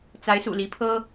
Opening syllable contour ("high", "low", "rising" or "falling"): rising